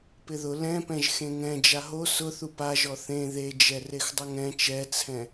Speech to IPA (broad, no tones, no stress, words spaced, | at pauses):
pɪðʊ lɛ̃pɛ̃ʒ xẽŋɛ̃ d͡ʒaɦo sʊ θupaʒɔ θẽ ðed͡ʒɛ rexdˤʊŋɛ̃ t͡ʃɛt͡sʰɛ̃